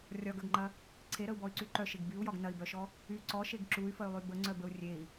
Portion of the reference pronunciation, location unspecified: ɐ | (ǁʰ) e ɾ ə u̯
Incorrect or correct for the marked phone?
incorrect: ǀʰ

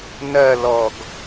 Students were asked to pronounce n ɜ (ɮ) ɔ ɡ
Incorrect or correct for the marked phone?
incorrect: l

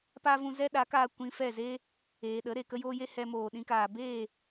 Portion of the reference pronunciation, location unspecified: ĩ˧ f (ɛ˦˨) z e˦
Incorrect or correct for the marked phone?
correct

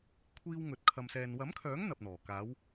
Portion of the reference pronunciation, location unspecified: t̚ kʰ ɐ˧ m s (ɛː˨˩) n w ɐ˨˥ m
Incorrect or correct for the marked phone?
incorrect: ɛː˧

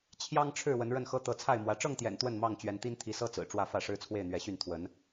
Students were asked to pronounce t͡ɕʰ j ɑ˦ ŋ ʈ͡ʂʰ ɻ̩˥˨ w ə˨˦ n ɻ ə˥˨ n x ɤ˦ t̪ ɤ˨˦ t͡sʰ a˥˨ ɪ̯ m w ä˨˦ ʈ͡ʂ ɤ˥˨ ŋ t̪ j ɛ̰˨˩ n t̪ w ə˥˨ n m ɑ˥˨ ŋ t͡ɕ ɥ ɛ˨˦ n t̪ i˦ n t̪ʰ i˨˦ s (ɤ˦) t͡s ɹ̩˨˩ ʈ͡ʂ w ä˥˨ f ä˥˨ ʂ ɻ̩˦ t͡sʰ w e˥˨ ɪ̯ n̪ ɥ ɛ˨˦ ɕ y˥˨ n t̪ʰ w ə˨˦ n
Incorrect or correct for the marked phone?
correct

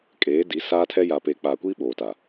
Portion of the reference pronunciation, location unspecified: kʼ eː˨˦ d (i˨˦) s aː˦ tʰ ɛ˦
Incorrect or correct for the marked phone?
correct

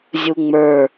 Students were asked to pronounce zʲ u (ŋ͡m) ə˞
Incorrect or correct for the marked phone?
correct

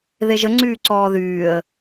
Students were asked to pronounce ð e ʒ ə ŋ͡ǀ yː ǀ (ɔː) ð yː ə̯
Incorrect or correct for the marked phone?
correct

